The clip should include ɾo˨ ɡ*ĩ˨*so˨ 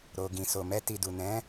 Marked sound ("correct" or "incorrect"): correct